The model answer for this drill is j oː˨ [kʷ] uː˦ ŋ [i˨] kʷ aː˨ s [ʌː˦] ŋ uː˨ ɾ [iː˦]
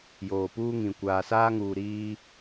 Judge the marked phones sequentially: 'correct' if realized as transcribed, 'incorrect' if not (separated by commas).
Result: incorrect, incorrect, incorrect, correct